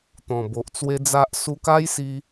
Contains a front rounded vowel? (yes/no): no